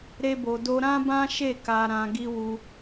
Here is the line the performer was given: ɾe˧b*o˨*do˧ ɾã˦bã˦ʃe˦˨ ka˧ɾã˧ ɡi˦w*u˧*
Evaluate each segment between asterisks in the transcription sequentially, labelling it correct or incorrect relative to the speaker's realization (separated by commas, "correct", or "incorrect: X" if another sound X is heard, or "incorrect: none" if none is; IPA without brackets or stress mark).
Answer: correct, correct